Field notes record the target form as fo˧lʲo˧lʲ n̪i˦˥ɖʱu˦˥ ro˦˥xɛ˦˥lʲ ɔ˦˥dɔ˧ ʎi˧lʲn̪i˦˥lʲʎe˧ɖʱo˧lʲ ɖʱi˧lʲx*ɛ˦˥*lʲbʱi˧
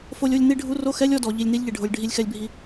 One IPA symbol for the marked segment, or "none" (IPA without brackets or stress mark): ɛ˧